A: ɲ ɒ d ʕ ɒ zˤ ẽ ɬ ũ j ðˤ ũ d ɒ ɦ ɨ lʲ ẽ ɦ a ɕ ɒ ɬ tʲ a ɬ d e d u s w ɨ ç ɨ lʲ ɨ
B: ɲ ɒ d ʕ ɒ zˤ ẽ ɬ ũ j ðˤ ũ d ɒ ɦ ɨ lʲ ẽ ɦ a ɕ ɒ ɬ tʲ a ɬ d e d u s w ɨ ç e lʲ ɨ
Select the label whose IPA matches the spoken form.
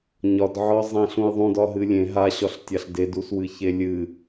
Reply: B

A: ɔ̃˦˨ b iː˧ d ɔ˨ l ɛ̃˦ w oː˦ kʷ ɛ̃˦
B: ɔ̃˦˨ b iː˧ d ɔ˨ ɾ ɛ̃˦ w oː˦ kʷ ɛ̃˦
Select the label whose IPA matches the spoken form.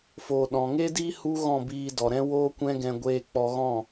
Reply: B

